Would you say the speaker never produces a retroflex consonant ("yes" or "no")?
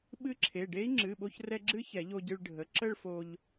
no